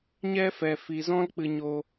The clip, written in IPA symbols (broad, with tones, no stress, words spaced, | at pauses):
ɲɛ˦fɛ˧ fi˧zɔ̃˦lk͡pɨ˧ɲo˧